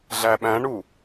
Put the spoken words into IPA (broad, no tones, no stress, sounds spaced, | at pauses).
ɮ æ ɓ æ̃ ɳ u